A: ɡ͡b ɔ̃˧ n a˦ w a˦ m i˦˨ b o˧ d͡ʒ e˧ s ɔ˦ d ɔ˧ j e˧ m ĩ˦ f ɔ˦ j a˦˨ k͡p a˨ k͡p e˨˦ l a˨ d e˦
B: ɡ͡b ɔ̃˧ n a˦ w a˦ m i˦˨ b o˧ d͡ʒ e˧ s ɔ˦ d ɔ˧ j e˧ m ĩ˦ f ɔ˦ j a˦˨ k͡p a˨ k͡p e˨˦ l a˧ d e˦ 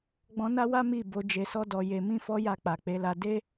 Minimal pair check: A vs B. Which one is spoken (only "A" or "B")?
B